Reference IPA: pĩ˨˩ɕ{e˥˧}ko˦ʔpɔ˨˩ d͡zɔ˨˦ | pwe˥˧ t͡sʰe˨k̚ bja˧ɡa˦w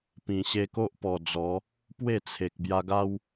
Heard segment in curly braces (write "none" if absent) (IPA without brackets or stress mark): e˧